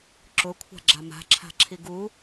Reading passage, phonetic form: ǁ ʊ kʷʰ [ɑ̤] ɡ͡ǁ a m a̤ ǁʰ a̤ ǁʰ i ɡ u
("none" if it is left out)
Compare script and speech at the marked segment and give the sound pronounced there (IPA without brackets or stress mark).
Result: a̤